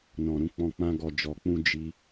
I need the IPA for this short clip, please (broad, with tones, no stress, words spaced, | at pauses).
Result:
nɔ̃˨ɾũ˨˦k͡pɔ̃˧ k͡pã˧ ɡɔ˨d͡ʒɔ˨k͡pũ˧ d͡ʒi˧